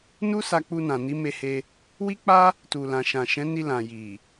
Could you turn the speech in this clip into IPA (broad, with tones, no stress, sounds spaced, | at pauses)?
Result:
n u˦ s a˧ k͡p u˧ n ã˨ n i˨˦ m e˧ h e˧ | w i˦ k͡p a˦ | t u˨ l ã˨ ʃ ã˨ ʃ ɛ̃˨˦ n i˧ l ã˨ j i˨